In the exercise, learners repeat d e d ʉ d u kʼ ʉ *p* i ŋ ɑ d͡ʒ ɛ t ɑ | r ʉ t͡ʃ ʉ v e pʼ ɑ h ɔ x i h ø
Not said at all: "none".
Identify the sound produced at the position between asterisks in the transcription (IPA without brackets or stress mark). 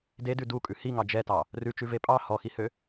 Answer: h